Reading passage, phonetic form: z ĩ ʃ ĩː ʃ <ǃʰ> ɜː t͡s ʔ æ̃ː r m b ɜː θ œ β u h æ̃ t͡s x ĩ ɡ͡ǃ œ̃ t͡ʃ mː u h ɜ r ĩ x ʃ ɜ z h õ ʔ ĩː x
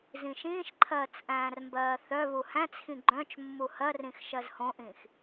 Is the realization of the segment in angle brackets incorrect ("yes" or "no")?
no